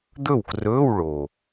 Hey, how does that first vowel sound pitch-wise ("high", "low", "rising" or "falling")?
falling